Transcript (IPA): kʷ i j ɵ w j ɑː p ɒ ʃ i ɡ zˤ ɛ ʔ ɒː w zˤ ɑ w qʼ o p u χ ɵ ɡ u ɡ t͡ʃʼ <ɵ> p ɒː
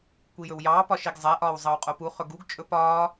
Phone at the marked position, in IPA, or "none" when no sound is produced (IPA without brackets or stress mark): ɵ